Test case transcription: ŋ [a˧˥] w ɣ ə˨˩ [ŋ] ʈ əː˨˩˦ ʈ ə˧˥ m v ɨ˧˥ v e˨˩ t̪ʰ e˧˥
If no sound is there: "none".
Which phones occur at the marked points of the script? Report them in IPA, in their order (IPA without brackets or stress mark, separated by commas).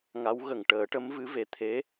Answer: a˧˥, ŋ